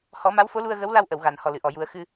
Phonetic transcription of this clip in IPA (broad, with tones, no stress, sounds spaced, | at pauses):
h ɔ˨˩˦ m a˧˥ w f o˧˥ l u˧ ə̯ ɣ ə˧˥ w l a˧ w ʔ ə˨˩˨ w ɣ a˨˩˨ n h ɔ˨˩ l ɨ˨˩˨ ʔ ɔ˨˩˨ j u˨˩˦ ə̯ x ɨ˧